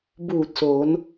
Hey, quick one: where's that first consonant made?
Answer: lips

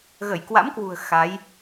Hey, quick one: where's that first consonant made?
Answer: velum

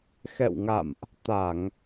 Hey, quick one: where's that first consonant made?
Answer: velum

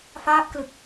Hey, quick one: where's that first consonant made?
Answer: lips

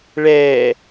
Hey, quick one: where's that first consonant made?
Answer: retroflex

